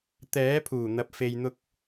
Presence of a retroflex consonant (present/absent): absent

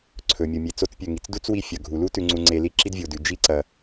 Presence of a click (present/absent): present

